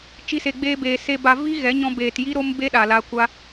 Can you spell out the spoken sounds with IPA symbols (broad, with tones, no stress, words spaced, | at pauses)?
t͡ʃi˧se˨ɡ͡beː˧beː˨ se˧ ba˧ vi˦ɣɛ˨˦ ɲɔ̃˧beː˨tji˦ ɾo˦mbe˦ɗa˨la˧ kʷa˧